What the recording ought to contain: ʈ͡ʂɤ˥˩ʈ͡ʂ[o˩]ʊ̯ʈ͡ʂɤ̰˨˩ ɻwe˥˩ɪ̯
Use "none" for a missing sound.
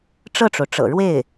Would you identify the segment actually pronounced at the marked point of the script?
o˩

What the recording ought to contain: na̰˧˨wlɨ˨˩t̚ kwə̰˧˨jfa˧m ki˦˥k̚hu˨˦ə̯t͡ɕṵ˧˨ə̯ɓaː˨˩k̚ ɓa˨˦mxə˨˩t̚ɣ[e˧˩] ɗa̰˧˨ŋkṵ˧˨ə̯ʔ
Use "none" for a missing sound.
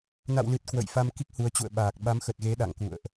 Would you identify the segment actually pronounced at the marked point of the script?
e˨˦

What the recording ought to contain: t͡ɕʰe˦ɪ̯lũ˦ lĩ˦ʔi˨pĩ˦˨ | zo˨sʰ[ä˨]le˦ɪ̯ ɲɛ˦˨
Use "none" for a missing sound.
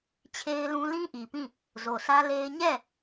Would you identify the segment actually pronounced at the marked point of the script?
ä˦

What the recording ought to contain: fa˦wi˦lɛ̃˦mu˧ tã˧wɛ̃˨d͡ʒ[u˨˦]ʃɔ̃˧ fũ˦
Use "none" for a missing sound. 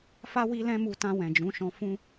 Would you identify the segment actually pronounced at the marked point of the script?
ũ˨˦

